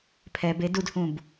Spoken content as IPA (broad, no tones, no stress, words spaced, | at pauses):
pʰɛb edudhũb